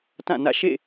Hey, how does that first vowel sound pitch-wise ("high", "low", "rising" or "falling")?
falling